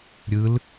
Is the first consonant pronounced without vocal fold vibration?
no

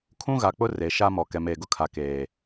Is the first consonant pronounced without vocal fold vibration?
yes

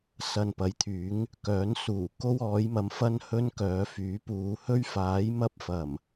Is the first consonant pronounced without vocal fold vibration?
yes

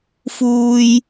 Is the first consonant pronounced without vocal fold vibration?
yes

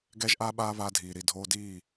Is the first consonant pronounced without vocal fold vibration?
no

